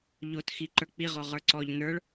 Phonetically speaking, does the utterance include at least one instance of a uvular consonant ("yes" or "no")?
yes